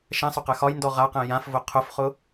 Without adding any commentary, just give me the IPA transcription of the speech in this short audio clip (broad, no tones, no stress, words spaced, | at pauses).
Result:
ʃɛ̃sˤʊqɛ xɒjndɔ ʁaqɛ̃ jãfvʊ qʰʊfχʊ